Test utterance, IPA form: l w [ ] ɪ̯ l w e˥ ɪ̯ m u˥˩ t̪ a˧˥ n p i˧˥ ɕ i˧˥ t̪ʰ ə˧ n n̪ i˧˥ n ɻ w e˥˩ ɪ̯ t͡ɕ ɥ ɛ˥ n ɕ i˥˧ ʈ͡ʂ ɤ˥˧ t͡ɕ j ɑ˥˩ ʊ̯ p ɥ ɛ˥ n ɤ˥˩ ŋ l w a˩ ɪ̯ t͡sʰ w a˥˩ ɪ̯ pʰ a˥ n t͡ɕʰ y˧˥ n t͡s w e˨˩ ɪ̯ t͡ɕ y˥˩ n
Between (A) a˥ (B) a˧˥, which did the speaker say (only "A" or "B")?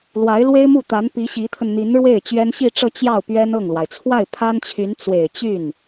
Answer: B